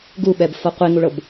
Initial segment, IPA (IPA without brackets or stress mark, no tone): ɡ